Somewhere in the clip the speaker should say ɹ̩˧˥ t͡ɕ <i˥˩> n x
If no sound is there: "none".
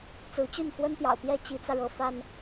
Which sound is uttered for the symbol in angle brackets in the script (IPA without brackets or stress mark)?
y˥˩